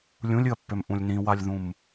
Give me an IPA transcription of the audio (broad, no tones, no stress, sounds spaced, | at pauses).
lʲ ũ lʲ ɨ ɐ̯ pː ø m ʔ ũ lʲ n ĩ w a lʲ ð ũ m